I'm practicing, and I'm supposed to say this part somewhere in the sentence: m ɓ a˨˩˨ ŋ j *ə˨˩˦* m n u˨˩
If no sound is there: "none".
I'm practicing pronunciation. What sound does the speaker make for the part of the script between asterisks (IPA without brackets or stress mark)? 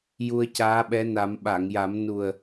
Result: a˨˩˦